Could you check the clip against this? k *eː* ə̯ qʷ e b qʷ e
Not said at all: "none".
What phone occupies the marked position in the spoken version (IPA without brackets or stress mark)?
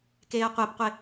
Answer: eː